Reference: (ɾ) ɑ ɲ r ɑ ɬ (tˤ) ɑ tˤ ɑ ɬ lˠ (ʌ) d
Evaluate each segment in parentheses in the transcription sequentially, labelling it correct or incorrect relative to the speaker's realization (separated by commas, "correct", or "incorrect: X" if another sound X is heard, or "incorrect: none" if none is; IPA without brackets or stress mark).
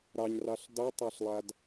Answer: correct, incorrect: d, incorrect: a